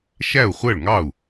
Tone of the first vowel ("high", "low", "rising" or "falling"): falling